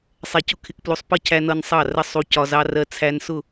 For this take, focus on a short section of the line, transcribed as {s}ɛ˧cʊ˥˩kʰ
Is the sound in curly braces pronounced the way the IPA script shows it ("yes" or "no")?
no